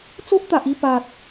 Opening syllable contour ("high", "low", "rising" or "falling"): high